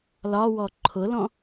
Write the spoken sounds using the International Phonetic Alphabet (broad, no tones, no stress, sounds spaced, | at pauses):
l ɒ w ɔ ǃʰ ʊ l ɔ̃